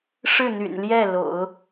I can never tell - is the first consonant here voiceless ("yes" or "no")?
yes